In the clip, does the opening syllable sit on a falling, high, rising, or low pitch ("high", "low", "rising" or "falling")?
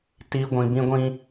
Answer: high